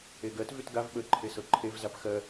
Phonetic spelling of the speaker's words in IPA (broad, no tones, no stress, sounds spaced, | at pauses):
e ɡ ɜ t v y t ɡ a v ɓ ə ǃʰ e s ɤ ǃʰ e v z a p x ɜ